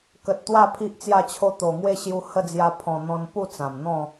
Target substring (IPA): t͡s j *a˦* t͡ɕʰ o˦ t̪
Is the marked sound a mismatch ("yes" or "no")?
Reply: yes